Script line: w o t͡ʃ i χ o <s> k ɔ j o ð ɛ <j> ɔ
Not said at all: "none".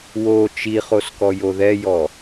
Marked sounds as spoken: s, j

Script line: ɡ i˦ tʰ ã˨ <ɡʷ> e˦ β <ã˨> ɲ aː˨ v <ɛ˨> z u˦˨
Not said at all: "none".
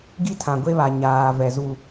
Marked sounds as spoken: ɡʷ, a˨, ɛ˨

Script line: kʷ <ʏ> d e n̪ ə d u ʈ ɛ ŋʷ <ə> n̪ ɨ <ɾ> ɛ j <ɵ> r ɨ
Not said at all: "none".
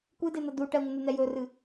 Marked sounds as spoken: ɨ, ə, n̪, ɵ

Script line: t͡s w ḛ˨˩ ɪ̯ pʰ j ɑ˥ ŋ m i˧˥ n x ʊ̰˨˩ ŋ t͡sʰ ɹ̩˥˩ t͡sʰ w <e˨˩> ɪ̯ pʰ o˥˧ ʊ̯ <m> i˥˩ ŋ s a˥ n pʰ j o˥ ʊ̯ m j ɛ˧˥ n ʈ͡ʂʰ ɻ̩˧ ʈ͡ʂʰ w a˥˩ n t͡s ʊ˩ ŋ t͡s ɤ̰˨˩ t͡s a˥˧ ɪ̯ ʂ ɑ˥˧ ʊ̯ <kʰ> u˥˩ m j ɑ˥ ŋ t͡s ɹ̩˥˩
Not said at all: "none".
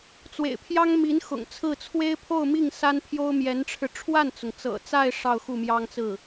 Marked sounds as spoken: e˥, m, x

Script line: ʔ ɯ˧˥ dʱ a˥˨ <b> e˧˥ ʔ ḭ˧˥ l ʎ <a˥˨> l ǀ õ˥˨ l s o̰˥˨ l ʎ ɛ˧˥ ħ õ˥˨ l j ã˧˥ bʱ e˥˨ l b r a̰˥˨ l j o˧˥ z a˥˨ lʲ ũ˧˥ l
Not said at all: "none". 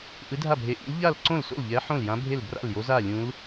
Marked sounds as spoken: bʱ, a˥˨

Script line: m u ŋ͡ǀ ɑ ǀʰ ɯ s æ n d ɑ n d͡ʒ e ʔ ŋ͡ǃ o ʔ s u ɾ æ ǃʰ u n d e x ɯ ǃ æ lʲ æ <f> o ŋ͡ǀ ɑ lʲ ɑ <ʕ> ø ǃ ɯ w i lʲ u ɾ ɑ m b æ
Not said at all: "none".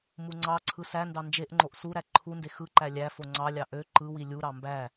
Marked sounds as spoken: f, ʔ

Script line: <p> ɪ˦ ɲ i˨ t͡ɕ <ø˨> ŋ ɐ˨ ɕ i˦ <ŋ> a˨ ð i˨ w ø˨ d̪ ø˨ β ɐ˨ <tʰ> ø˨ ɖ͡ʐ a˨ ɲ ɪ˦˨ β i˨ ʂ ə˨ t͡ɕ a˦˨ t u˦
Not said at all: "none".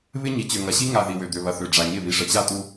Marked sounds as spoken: β, ø˨, ŋ, θ

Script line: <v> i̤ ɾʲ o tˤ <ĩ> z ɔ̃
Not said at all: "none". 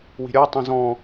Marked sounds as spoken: w, ĩ

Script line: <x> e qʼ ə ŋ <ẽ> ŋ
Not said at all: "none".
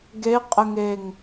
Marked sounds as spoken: ɡ, e

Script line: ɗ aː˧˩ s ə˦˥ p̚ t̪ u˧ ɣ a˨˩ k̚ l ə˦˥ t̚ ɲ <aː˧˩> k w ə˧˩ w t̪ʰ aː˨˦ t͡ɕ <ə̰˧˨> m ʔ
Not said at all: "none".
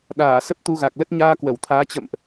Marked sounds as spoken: aː˧, ə̰˧˨

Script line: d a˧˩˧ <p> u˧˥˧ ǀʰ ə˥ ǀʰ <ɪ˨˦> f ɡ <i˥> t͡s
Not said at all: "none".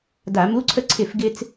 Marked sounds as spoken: m, ɪ˥˩, ɪ˥

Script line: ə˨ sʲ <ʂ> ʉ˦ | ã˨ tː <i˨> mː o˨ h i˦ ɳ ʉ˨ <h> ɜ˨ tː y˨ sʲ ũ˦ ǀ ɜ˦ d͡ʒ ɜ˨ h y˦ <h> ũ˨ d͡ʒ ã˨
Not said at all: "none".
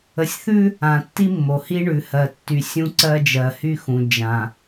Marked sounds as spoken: θ, i˦, h, x

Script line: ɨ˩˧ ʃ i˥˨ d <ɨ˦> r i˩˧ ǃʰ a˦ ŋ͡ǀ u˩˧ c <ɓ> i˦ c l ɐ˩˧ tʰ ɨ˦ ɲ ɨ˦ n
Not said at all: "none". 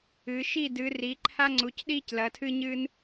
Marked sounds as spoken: ɨ˩˧, ɗ

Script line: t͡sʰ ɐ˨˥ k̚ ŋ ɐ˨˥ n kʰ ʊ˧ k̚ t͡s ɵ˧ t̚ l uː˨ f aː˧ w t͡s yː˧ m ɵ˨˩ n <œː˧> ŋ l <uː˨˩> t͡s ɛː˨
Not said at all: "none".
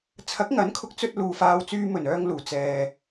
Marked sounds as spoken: œː˧, uː˨˩

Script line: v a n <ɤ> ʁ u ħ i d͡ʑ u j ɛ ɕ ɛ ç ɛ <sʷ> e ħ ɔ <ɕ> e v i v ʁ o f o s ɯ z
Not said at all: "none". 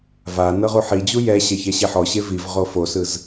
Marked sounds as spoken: ɤ, ɕ, ɕ

